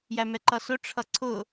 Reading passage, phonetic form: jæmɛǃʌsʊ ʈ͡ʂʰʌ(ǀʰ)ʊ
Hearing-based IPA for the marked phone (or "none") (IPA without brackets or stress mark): ǀʰ